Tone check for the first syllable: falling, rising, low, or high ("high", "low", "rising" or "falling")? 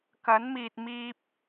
rising